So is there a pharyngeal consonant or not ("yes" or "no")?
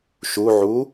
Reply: yes